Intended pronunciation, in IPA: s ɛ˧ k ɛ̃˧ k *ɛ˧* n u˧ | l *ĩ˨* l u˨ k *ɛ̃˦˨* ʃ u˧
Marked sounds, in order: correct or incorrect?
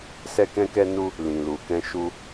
correct, correct, incorrect: ɛ̃˧

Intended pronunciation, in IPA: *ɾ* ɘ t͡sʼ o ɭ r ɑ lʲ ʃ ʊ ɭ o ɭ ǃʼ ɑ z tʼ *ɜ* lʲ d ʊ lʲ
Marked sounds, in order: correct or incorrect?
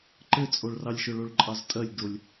incorrect: ǃ, correct

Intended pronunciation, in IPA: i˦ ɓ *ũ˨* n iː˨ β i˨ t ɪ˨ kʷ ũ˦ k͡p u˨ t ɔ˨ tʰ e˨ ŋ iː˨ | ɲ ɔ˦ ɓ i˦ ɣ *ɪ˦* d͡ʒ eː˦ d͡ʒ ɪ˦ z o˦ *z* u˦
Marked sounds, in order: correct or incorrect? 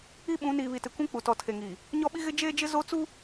incorrect: ũ˨˦, correct, incorrect: t͡s

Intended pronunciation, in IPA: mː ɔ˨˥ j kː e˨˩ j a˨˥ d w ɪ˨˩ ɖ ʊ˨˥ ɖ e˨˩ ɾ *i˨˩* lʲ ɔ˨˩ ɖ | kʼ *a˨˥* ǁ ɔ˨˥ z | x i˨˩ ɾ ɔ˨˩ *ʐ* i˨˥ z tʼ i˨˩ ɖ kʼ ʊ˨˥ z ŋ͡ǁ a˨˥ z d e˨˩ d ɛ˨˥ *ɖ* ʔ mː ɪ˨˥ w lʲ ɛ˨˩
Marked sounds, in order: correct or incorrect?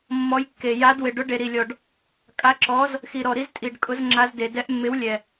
correct, correct, incorrect: ɾ, incorrect: none

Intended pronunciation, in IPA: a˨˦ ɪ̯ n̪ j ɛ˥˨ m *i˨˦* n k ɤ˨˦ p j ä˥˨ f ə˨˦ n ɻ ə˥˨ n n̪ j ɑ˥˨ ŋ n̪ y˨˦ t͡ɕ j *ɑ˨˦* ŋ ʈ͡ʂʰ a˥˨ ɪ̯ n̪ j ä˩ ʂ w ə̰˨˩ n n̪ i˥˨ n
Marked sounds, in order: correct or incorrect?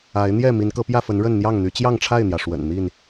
correct, incorrect: ɑ˥˨

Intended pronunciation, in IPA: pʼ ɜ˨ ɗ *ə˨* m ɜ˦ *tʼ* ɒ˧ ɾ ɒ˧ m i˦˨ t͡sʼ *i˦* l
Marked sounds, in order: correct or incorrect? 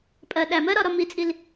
incorrect: æ˨, incorrect: ɾ, incorrect: i˧

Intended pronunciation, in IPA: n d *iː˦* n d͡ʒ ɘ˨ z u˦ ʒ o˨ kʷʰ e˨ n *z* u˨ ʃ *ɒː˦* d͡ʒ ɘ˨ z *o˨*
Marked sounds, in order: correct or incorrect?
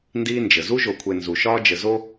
correct, correct, correct, incorrect: o˦

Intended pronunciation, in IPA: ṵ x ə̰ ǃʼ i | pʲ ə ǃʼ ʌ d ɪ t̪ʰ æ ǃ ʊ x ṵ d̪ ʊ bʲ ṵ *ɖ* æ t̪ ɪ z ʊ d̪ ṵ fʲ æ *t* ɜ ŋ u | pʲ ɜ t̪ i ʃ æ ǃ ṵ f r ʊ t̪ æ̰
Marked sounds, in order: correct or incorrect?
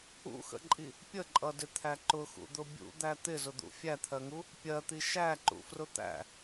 incorrect: d̪, incorrect: t̪ʰ

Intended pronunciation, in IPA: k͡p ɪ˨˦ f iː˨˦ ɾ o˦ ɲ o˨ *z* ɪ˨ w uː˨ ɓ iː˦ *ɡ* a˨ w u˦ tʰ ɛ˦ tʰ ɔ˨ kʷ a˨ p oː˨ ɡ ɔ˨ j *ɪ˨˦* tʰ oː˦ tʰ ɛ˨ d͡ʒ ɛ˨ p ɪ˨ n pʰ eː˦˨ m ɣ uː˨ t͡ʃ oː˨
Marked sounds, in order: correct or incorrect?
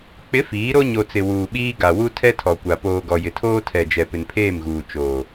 incorrect: t͡s, correct, incorrect: ɪ˨

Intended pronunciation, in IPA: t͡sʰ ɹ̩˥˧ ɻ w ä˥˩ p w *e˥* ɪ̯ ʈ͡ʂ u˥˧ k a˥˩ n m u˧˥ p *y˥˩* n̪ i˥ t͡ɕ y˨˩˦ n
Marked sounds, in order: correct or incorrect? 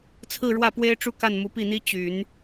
correct, incorrect: i˥˩

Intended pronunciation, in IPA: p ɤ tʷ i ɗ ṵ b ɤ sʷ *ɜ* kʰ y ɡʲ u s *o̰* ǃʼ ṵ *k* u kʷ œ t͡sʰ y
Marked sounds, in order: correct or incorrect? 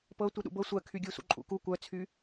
correct, incorrect: ṵ, correct

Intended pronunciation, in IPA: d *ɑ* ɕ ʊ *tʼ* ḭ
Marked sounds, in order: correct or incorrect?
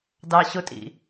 correct, correct

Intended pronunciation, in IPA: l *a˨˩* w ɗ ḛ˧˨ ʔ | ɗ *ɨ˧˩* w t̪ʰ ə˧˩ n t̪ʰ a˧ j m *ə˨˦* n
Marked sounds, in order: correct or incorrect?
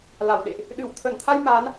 incorrect: a˧˩, correct, incorrect: a˨˦

